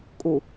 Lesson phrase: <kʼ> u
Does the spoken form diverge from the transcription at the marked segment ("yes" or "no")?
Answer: no